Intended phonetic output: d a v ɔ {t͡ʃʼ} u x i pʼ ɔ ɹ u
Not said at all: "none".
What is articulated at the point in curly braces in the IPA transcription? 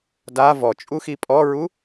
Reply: t͡ʃʼ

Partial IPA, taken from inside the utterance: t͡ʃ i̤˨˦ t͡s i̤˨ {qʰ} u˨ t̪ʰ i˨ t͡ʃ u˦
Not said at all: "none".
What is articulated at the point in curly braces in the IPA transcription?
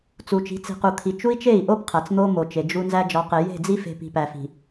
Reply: q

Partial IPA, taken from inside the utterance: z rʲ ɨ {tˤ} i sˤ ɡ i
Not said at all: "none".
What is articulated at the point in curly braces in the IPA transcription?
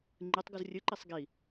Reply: ǃ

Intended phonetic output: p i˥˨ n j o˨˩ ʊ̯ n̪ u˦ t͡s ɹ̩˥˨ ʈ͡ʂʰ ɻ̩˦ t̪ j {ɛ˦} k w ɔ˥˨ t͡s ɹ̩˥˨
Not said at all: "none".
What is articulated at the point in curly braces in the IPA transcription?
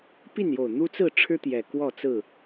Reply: ɛ˨˩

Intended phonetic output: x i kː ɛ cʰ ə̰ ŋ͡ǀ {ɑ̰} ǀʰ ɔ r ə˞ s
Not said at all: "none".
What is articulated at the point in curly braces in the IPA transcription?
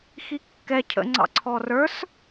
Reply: ɑ̰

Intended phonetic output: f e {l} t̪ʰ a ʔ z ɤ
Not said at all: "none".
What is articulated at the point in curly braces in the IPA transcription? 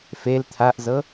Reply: l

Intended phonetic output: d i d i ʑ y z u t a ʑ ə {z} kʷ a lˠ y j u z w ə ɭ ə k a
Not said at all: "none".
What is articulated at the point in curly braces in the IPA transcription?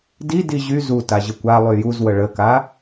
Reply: none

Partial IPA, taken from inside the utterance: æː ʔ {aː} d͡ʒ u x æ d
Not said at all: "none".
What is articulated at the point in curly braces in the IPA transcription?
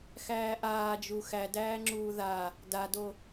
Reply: aː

